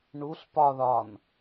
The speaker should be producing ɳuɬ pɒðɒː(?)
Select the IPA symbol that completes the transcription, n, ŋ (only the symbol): n